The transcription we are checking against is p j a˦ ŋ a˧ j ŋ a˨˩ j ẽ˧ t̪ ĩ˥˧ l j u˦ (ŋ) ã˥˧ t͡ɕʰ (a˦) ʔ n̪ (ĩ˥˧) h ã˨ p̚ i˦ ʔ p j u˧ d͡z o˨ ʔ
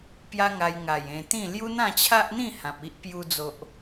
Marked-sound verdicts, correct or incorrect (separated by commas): incorrect, correct, correct